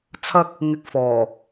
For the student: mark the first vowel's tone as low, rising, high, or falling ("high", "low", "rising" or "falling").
high